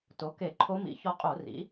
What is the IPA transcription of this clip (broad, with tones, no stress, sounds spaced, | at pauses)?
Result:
t o˩˥ k e˧˩˧ ǃʰ o˧˥ m ḭ˩˥ ç ɔ˧ qʼ o˧˩˧ r ḭ˩˥